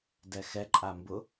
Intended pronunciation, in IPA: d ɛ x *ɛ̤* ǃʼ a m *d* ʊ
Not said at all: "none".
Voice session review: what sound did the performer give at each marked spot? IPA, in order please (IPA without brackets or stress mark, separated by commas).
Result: ɛ, b